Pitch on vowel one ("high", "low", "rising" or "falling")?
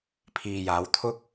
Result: low